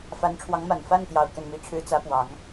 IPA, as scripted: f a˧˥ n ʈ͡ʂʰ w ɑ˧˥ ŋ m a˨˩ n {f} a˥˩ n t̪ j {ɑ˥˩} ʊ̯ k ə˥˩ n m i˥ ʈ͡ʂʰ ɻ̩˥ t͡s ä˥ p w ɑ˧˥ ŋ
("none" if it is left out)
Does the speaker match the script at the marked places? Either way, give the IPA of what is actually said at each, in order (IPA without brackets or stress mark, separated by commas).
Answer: f, ɑ˨˩